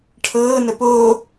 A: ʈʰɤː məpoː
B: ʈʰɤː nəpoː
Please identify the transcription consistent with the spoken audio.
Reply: B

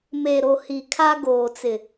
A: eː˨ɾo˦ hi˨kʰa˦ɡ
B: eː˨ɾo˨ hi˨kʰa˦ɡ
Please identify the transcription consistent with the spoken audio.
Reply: B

